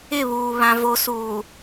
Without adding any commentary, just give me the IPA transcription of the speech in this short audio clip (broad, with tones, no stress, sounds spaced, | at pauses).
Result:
ɪ˦˨ β uː˨ β ã˨ v o˨ s uː˨